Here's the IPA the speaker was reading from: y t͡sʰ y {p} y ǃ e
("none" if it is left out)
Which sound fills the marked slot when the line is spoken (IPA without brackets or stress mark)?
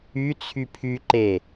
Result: pʰ